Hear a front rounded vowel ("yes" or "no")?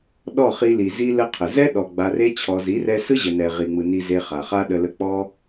no